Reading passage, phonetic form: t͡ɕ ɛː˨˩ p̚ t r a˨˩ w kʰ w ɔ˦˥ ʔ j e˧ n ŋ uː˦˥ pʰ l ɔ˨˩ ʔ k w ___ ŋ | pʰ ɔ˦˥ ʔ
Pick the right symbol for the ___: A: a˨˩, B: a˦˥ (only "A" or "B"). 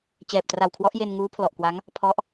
B